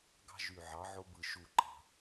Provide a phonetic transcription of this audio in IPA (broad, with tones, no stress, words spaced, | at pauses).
ɡɑ̤˦ ʒy˧˩ʕɑ˩˥ʕo˦bɯ˧˩ ʃu˧˩ǃɑ̤˧˩